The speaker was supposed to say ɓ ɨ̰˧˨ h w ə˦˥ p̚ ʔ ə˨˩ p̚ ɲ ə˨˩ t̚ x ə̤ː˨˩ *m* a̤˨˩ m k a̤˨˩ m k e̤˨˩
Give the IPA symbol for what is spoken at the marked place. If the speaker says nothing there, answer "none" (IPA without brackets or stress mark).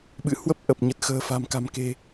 f